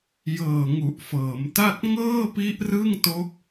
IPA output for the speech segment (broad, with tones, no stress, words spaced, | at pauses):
jɤː˨˩ ŋu˨˩ʔfɤː˩˦mta˥˩t̚ ŋɤː˥˩pi˦˥ʔrɯ˥˩ŋto˦˥k̚